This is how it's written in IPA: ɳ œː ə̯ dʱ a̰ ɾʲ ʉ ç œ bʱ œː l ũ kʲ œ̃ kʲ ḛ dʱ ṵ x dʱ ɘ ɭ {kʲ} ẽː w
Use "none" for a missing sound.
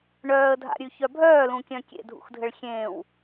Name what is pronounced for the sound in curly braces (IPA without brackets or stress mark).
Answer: xʲ